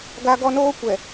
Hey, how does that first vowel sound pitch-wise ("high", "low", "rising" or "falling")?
high